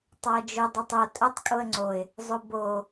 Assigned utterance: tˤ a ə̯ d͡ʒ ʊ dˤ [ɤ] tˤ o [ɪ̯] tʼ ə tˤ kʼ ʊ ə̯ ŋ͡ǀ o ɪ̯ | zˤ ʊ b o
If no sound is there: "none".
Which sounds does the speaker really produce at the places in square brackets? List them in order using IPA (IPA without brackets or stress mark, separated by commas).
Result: o, none